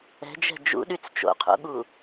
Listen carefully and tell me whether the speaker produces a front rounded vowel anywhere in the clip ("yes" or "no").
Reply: yes